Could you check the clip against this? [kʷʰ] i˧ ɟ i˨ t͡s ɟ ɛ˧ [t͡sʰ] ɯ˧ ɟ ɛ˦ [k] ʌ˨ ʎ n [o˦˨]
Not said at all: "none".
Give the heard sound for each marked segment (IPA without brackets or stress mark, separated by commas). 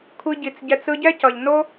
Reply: kʷʰ, t͡s, c, o˦